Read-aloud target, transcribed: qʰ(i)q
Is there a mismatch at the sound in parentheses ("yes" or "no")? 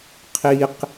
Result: no